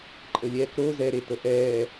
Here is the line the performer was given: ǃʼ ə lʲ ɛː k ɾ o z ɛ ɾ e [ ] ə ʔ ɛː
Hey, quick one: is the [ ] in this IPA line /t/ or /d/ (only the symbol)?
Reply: t